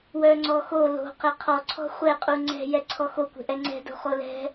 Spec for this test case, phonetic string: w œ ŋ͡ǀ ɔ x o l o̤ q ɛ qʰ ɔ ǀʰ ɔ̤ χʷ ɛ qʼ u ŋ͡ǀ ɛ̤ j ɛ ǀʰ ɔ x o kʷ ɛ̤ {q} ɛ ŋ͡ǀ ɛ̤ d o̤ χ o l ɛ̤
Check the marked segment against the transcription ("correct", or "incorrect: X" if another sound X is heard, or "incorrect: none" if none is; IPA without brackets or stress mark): incorrect: ʔ